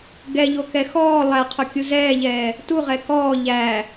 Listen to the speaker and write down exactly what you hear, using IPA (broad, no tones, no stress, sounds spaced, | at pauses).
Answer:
ɡ ɛ ʎ o k ɛ x ɔː lˠ æ qʰ o kʲ u z ɛː ʎ ɛː | t u ʁ ɛ k ɔː ʎ æ